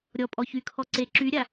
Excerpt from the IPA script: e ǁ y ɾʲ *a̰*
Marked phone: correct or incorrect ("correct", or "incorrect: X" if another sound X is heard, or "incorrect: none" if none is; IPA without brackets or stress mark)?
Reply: incorrect: a